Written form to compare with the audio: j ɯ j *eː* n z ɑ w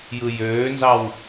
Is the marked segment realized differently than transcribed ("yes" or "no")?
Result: yes